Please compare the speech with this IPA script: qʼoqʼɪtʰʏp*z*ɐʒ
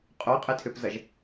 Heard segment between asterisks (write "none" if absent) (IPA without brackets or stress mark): z